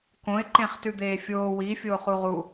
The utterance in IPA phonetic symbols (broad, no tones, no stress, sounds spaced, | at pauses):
k õ ɪ̯ ǃ ẽ χ t ʉ d̪ eː fʲ oː w i fʲ oː χ u ʁ u